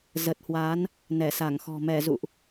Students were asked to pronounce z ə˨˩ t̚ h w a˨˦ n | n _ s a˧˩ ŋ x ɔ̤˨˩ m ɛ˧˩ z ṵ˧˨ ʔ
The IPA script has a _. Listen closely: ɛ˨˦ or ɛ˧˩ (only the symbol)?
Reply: ɛ˧˩